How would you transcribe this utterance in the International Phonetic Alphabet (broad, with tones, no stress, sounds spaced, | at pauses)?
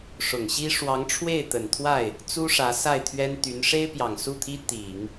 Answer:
ʂ ʊ˨˩ ŋ ɕ i˥ ʂ w ɑ˧˥ ŋ ʈ͡ʂʰ w e˥˩ ɪ̯ t̪ ə˨˩ n t̪ʰ w a˥˩ ɪ̯ | t͡s u˥ ʂ ä˧˥ s a˥˩ ɪ̯ t̪ʰ ɥ ɛ˥ n t̪ y˧˥ n ʂ e˥ ɪ̯ p j ɑ˨˩ ŋ s u˥˩ t̪ʰ i˥ t̪ i˨˩˦ ŋ